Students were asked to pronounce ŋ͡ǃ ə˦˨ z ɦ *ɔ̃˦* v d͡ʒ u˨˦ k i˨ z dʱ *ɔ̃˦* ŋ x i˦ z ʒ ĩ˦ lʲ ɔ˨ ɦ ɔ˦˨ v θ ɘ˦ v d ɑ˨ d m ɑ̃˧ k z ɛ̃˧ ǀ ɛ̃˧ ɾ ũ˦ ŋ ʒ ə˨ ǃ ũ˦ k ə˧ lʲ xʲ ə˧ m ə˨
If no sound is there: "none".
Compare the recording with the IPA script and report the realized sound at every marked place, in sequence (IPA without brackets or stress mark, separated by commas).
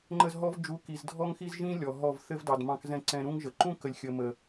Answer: ɔ˦, ɔ˦